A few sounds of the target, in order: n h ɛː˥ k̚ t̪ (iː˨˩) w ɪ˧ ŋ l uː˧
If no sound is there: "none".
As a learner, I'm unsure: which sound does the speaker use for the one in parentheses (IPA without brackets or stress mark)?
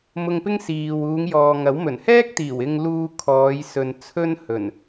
iː˨˩